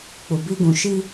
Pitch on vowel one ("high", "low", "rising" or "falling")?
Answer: low